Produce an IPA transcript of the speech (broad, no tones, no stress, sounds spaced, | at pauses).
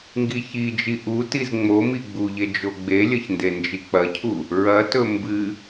ŋ ɡ i ç i d͡ʒ i ʔ u t i z ŋ͡m o m i ɡ͡b u ʎ e d͡ʒ o ɡ͡b e lʲ ɐ ç n d e n d͡ʒ i k͡p ɐ cʰ u | ɹ ɐ t ɵ m b ɨ